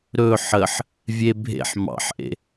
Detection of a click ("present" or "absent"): absent